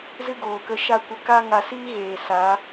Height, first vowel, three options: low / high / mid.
high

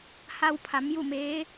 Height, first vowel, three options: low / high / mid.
low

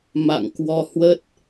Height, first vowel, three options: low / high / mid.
low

